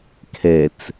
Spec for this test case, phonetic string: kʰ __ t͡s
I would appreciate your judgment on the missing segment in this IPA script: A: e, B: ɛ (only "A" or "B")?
B